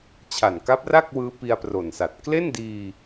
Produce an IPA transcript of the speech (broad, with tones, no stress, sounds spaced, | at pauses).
t͡ɕʰ a˨˩ n k a˦˥ p̚ r a˥˩ k̚ w ɯː˦˥ p i˧ a̯ p r o˨˩ n s a˨˩ t̚ k l e˥˩ n d iː˧